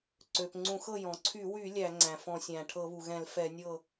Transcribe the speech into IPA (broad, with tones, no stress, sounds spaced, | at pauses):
ǀ ø˩ p ŋ͡ǀ ũ˧˩˧ x ɤ˥˩ j ɔ̃˩ ǀʰ y˧˩˧ w y˧˩˧ lʲ æ˧˩˧ ŋ͡ǀ æ̃˩ f ɔ̃˧˩˧ sʲ æ̃˩ ʈʰ ɤ˧˩˧ β u˩ ɣ ɛ̃˧˩˧ l f ɛ˧˩˧ nʲ ɤ˥˩